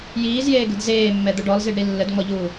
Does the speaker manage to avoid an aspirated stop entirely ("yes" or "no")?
yes